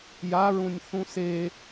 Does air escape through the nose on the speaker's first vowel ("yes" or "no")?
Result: no